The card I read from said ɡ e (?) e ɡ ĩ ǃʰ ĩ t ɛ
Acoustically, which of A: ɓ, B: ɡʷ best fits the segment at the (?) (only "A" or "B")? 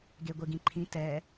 B